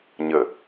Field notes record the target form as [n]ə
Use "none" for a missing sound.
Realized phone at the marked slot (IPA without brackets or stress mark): ɲ